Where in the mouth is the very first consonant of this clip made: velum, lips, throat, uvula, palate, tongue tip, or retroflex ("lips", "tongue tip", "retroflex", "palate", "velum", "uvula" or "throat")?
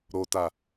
tongue tip